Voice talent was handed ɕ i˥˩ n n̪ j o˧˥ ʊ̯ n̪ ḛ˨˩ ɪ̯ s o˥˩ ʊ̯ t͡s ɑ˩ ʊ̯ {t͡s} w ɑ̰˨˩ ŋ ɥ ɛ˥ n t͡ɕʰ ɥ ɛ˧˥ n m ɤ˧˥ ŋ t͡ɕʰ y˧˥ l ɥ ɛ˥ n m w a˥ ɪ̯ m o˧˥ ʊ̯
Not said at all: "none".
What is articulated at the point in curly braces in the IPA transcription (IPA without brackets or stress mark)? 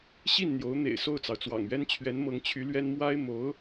t͡s